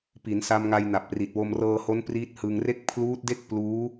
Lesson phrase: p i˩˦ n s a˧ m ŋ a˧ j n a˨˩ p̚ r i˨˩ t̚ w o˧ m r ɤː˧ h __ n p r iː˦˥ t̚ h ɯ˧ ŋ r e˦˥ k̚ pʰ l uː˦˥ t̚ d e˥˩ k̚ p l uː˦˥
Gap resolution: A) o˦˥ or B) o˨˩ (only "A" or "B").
A